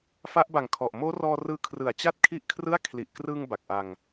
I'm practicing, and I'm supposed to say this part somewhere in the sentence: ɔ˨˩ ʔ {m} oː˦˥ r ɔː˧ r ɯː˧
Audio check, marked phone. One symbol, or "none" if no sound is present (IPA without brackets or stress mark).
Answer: m